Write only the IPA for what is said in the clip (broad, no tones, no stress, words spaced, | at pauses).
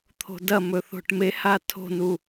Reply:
t̪ʰo̤dɐmɵ θo̤ʈmeha tʰo̤nu